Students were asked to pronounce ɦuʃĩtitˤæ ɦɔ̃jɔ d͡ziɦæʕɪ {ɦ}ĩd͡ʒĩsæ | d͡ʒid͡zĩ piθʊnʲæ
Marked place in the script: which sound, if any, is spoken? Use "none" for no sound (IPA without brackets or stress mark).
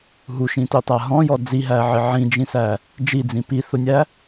ʕ